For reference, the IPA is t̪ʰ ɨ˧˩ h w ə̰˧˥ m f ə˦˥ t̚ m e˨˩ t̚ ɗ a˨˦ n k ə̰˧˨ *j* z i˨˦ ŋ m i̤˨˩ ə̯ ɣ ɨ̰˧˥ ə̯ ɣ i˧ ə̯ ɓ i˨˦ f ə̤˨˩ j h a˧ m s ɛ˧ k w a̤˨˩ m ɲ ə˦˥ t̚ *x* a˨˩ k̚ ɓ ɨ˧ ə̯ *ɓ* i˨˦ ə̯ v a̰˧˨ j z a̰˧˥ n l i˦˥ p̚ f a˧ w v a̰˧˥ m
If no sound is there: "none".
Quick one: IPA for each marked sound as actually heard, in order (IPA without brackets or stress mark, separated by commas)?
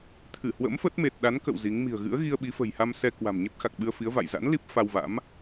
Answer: w, x, f